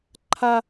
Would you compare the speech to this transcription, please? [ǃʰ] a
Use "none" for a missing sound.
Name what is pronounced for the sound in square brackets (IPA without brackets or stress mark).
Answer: ǃʰ